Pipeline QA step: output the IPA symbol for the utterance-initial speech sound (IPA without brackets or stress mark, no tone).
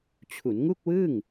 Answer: t͡ɕʰ